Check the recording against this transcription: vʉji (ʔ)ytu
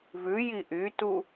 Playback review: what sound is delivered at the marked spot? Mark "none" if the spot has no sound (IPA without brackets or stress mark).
ʔ